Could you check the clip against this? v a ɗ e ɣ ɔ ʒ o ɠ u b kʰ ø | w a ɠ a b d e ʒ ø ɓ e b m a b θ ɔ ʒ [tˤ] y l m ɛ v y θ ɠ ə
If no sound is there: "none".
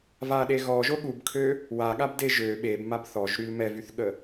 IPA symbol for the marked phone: ɾ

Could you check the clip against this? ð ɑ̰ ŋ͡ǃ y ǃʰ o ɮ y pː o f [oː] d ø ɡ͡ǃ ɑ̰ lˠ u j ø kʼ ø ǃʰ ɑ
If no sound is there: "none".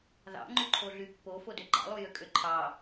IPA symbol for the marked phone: o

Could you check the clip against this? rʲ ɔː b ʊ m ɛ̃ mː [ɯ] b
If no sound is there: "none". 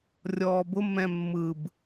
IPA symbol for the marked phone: ɯ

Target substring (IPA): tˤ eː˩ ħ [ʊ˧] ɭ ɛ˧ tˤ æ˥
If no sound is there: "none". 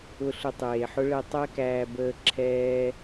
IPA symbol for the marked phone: ʊ˥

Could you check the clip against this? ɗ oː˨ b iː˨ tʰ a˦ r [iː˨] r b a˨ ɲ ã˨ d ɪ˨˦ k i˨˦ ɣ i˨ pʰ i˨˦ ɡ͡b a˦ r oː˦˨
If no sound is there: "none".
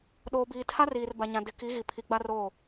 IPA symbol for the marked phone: iː˨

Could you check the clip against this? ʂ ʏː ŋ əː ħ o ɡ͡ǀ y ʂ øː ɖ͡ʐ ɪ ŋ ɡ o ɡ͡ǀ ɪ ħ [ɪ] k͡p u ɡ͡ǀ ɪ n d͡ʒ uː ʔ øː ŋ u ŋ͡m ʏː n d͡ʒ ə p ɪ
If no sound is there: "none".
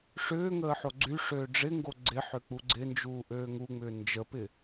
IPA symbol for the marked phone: ʏ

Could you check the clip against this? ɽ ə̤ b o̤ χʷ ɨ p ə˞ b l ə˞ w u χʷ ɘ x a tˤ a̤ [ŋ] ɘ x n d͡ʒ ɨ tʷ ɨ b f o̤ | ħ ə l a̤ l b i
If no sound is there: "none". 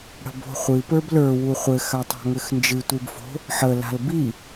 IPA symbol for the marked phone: ŋ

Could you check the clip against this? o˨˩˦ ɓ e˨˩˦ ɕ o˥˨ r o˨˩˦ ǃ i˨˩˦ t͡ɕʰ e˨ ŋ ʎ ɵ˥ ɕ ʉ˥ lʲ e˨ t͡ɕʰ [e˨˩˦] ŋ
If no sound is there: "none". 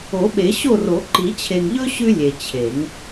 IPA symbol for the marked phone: e˨˩˦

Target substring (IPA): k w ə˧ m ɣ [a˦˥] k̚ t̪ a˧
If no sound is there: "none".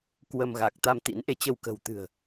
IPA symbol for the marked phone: a˨˩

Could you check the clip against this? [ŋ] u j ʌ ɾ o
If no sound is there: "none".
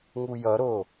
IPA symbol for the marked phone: ŋ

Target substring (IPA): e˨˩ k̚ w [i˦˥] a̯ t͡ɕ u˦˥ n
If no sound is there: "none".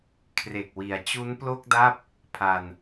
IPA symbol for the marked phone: i˨˩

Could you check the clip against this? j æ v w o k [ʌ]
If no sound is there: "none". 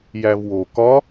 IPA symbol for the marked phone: ɒ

